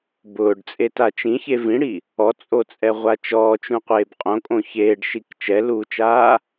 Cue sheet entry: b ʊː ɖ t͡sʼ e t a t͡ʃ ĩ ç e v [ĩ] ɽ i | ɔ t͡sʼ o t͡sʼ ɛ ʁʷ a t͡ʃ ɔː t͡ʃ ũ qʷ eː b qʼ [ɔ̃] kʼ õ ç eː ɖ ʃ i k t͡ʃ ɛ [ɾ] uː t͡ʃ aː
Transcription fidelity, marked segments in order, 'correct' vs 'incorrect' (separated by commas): correct, incorrect, incorrect